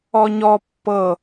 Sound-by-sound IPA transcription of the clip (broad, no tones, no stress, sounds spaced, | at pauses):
ɔ ɲ ɔ pː ɤ